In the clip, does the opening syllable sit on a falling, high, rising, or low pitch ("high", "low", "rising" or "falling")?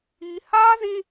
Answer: high